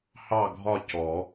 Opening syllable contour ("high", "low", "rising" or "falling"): falling